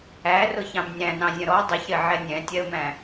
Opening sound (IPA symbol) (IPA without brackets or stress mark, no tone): æ